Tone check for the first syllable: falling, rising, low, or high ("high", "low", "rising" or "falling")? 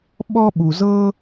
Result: high